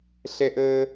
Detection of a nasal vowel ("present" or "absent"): absent